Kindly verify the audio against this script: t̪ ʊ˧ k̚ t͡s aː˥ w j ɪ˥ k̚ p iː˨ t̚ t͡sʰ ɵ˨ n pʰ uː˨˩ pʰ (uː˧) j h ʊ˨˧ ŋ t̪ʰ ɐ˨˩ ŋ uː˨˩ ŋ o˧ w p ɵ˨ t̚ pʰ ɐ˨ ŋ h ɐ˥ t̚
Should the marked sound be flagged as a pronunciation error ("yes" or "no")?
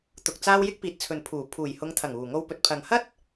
yes